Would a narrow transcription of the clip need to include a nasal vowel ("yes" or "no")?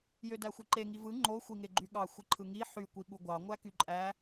no